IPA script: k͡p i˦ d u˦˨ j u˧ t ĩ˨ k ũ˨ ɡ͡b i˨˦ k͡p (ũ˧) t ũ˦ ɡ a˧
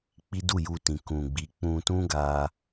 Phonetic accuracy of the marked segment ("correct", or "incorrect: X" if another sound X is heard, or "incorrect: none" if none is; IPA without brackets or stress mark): correct